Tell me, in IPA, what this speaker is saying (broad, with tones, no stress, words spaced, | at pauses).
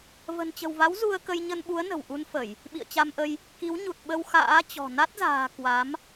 və̤˨˩nt͡ɕə̤˨˩wva˨˦w zu˧ə̯kə˧j ɲə˧nɓu˨˦ə̯ nə̤˨˩w ʔu˧nfə˧˩˨j | ɓḭ˧˨ə̯t͡ɕa˧mʔə˧j | ki˨˦w ɲu˨˩t̚ ɓə˧w xa̰ː˧˥t͡ɕɔ̤˨˩ na˦˥t̚za̤ː˨˩ kwa˨˦m